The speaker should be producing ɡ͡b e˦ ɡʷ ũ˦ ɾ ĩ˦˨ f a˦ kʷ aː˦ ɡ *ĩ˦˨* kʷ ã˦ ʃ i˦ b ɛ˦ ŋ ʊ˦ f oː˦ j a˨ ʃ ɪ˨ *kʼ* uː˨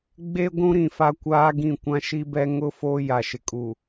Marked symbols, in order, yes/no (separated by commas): yes, yes